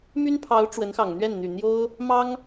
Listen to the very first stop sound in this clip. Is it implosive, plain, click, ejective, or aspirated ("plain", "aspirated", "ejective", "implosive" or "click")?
aspirated